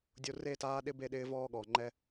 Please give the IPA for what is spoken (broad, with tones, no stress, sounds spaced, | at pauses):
dʲ o˦ r e˦˨ t aː˦ ɗ ɪ˦ b e˦ ɗ ɪː˦ v ɔː˦ ɠ ɔː˨ ŋ͡ǃ ɛ˦